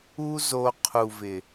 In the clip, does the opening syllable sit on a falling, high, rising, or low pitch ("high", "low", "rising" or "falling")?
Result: high